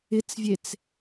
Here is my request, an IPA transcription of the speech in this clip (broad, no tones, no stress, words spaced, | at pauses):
ɪt͡svʲet͡s